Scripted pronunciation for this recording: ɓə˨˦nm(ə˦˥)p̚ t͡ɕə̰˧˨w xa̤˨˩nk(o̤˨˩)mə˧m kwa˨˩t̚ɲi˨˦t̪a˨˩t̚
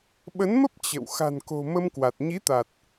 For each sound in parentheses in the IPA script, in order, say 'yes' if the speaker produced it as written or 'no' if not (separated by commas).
yes, yes